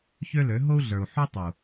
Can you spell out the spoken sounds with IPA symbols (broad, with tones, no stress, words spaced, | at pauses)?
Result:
çø˦ lø˨˦ ɦo˦u̯ɮə˞˨u̯ħu˦tˤu˨